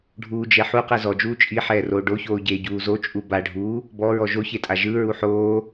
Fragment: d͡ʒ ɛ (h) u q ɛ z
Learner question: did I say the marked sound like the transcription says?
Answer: no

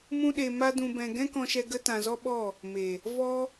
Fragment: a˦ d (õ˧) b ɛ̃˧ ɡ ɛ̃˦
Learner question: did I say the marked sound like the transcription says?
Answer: no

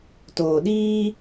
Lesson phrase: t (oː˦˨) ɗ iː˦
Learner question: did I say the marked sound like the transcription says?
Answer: no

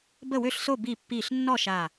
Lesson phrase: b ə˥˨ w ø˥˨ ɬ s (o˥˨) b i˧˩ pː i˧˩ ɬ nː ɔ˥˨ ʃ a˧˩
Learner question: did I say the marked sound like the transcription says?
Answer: yes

